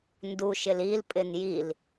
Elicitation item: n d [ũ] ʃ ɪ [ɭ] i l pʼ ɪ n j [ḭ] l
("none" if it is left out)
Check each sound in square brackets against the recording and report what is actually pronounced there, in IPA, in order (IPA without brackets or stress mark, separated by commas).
u, l, i